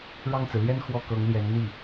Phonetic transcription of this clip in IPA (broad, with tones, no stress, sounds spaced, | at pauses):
ɻ ɑ˥˩ ŋ t͡s ɹ̩˩ l j ɛ˥ n x w ɔ˥˩ k ɤ˧˥ ŋ l j ɛ˧˥ n n̪ i˥˩